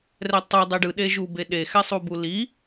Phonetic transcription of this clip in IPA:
r ɛ tˤ u dˤ i ɖ ɯ ɗ e ʒ u b e ɗ e x ɛ sˤ u b u l i

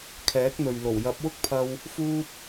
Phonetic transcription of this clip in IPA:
kʰ ɛː˨˥ k̚ n̪ ɵ˨ ɥ l o˨˩ w j ɐ˨˥ p̚ w ʊ˥ k̚ pʰ ɐ˧ w | f uː˥ p̚

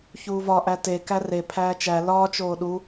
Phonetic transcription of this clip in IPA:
ç uː v ɒ ʔ æ t e k æ r e pʰ æː t͡ʃ æ l ɒː t͡ʃ oː ɗ u

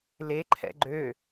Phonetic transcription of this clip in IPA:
l e ǃʰ ɛ̰ ɡ͡ǃ ø

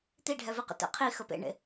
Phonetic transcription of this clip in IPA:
t̪ i ɖʱ ɛ v i q ə̰ t ɛ̰ qʰ i x ə p ḛ ɳ ḛ

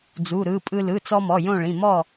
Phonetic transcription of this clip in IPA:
d͡z u˩˧˩ ɾ ɯ˩˧˩ pʼ ɯ˧ l ɯ˩˧˩ t͡s ɔ˧ m ɔ˩˧˩ j õ˥˨ ɭ ĩ˩˧˩ m ɔ˥˨

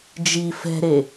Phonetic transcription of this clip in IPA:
d͡ʒ i f ɛ̤ ɾ e

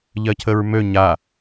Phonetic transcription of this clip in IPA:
ʎ ɜ cʰ ə ɹ m ø ɲ a

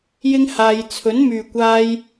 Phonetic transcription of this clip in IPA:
j ɪ˥ ŋ h aː˧ j t͡sʰ ɵ˨˥ n m yː˨ kʷ aː˧ j

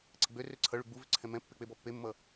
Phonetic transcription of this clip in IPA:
ǀ ə ɡ͡b ø r ø ǀʰ ʌ ɭ ʉ ɡ͡b u v ʏ ǀʰ ɛ̃ m ɛ̃ pː e k͡p e b ɔ pː e mː ʌ

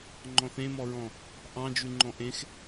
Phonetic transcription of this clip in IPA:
ŋ͡ǃ ɔ̃ θ ẽ m ɔ ɹ ɔ̃ | ʔ ɑ̃ d͡ʒ ʉ ŋ͡ǃ ɔ̃ ʔ ẽ x

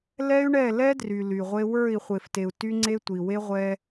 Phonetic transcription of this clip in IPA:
l ɛ˦ y̯ ɳ ɛ˦˨ l ɛ˦ d r y˨ l y˨ ʁʷ e˦ w ə˞˦˨ i̯ χʷ e˨ f t e˨ u̯ t y˦ ŋ͡ǀ e˦ tʷ i˨ w e˦ ʁʷ ɛ˦

